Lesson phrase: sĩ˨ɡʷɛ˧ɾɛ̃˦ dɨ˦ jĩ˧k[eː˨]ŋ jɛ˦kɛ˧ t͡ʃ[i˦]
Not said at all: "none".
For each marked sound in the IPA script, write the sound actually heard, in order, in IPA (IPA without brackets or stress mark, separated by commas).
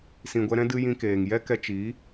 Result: eː˨, i˨˦